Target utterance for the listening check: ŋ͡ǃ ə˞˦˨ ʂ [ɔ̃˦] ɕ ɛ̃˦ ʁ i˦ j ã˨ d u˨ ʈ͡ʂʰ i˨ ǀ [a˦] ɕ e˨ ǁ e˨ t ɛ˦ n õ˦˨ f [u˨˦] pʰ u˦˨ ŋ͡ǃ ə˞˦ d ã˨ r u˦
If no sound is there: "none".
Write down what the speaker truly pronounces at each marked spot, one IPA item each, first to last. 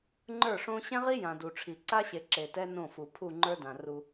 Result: õ˦, a˦, u˨

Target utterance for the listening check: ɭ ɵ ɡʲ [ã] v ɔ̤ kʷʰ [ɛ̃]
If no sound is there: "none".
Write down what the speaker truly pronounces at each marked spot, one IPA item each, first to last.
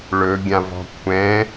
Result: ã, ɛ̃

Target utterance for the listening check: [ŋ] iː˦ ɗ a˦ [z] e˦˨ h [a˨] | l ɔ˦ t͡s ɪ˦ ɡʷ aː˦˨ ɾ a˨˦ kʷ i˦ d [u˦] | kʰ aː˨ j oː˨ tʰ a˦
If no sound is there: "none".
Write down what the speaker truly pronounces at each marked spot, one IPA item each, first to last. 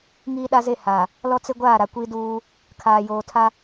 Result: ŋ, z, a˨, uː˦

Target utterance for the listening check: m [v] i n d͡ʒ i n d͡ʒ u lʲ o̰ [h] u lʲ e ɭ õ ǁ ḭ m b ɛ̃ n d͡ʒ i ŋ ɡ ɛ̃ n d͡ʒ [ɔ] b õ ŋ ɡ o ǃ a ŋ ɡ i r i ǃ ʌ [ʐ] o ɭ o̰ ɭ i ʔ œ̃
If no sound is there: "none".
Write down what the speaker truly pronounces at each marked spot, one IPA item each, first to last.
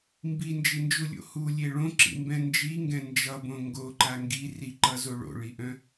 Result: b, h, ʌ, z

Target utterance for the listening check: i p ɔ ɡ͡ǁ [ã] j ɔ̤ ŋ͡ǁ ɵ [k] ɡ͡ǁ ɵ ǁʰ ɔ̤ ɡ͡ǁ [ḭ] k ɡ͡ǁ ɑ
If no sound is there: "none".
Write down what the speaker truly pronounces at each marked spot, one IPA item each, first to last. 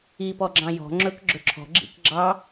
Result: ɑ̃, k, ḭ

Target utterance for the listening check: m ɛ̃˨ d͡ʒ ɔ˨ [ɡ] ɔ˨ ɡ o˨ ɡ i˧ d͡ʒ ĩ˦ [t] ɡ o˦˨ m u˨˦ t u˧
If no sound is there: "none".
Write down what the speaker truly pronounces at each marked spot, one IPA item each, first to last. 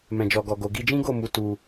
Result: ɡ, none

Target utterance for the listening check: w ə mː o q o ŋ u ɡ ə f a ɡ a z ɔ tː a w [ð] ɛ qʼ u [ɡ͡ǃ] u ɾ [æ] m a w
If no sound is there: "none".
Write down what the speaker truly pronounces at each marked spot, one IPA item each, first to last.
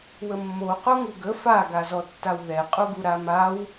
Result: ð, ɡ, a

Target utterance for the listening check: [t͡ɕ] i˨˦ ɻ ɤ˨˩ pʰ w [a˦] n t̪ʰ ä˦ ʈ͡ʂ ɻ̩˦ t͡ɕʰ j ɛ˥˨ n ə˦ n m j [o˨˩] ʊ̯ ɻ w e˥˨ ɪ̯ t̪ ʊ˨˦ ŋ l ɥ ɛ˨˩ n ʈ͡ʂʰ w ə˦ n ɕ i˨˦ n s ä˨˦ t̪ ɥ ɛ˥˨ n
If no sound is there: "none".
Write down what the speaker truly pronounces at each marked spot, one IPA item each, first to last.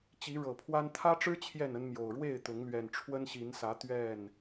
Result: t͡ɕ, a˦, o˨˩

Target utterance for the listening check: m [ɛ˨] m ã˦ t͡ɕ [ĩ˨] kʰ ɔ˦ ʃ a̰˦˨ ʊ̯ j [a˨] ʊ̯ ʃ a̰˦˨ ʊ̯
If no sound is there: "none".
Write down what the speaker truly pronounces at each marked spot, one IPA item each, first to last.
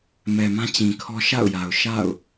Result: ɛ˨, ĩ˨, a˨

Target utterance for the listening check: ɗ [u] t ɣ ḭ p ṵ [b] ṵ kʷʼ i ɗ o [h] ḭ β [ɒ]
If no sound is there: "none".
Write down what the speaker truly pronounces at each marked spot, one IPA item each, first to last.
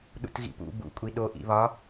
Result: ṵ, b, ʔ, ɒ

